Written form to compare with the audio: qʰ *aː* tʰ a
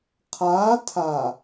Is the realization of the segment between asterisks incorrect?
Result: no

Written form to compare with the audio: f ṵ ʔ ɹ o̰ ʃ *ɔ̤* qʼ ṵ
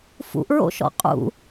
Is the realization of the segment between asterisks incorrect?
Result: yes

